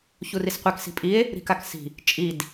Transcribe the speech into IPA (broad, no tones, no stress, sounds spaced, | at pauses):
ç u r i s qʷ e k s i̤ pʼ i e̯ | ɾ i̤ k a k s i̤ | t͡ʃʼ i d